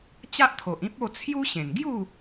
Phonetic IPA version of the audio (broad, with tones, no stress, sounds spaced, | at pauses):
t͡ɕ a˦ ʔ t̪ʰ o˨ ʔ ĩ˦ p̚ o˥˧ t͡sʰ j u˦ ɕ ẽ˨˩ n ɡ j u˥˧